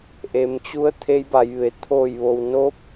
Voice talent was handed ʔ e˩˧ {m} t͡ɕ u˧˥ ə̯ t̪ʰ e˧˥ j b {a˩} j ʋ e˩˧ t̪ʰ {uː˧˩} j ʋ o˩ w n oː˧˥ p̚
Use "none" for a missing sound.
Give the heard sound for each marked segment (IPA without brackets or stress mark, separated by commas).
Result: m, a˩˧, oː˧˩